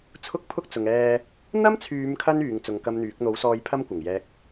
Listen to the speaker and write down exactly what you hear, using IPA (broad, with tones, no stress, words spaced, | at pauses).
t͡sʰʊ˥k̚pʰʊ˥k̚ t͡sʊ˨ŋɛː˧ | n̪ɐ˥mt͡sʰyː˨˧mkʰɐ˧n yː˨˧ŋt͡sʊ˨˧ŋkɐ˥mn̪yː˨˥k̚ n̪o˨˥wsɔː˧jpʰɐ˥m kʷɐ˨˩ŋjɛː˧k̚